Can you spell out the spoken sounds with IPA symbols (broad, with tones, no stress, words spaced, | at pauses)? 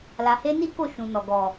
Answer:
la˧he˦ ni˦ko˦˨ ʃũ˨nɔ˨ ɡɔ˨